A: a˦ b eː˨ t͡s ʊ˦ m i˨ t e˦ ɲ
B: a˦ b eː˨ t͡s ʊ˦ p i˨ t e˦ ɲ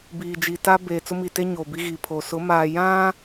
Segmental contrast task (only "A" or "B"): A